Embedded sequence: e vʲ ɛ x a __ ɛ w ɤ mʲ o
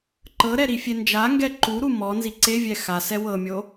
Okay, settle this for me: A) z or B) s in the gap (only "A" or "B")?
B